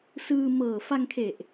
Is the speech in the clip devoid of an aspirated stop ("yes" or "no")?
no